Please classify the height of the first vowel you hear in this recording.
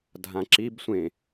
low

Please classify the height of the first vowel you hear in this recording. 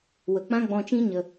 mid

